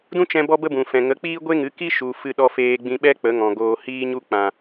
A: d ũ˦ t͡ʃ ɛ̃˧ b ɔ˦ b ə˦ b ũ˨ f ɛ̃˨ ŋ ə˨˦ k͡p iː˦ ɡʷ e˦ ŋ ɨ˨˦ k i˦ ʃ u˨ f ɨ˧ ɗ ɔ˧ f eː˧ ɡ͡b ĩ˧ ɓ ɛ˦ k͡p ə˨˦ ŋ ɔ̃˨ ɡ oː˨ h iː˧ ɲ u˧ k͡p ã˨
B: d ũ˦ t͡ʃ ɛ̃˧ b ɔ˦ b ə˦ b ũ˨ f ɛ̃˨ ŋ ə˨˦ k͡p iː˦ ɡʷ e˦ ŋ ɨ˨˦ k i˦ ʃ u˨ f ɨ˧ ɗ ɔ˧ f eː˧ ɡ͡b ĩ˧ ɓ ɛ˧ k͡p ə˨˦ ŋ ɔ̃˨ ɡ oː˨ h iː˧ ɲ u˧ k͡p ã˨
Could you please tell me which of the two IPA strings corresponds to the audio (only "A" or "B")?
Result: A